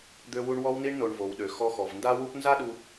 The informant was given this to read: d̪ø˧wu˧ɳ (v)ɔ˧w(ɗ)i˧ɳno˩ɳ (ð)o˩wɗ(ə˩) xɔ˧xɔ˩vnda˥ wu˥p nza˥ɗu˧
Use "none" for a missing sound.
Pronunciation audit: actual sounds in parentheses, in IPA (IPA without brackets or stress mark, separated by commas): w, n, v, ø˩